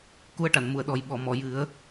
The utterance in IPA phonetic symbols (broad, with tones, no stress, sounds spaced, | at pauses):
k u˧ ə̯ ʈ a˨˩˨ n m u˨˩˨ ə̯ ɗ ɔ˨˩ j ɓ ɔ˨˩˨ m ɔ˨˩˨ j ɨ˨˩˦ ə̯